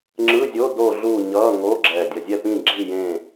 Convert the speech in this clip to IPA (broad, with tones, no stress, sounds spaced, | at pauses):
ŋ͡ǁ ɯ˧˥˧ zʲ o˧˥˧ d oː˦˨ ɮ uː˦˨ ɲ ʌː˧˥˧ ŋ o˧˥˧ ɡ͡ǁ ɛ˨˩ dʲ ʌ˨˩ zʲ ɛ˦˨ p ĩ˦˨ ɡ͡ǁ i˦˨ j ẽ˦˨